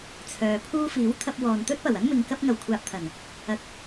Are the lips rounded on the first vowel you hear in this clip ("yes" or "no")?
yes